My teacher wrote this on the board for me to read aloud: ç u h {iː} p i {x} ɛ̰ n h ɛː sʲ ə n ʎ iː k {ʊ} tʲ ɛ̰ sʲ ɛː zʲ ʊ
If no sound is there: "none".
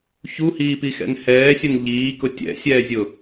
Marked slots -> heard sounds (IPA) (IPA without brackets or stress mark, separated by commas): iː, x, ʊ